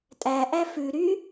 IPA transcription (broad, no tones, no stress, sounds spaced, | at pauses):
tʼ æ ʔ æ f ʉ ɾ y